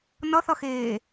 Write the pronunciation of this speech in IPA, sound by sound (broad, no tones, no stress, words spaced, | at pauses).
nʌθʌxeː